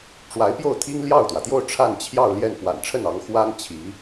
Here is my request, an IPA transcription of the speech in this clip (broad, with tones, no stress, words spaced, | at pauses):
ʈ͡ʂwa˧˥ɪ̯pjo˥˩ʊ̯t̪ʰi˥ŋ ljɑ˥˩ʊ̯t̪wä˩t̪jo˥˧ʊ̯ ʈ͡ʂʰa˥˧nt͡ɕʰjɑ˥˧ʊ̯ ljɛ˥˩n pwa̰˨˩nʈ͡ʂʰə˥˩nɑ˧˥ŋ xwa˥n t͡ɕʰi˧˥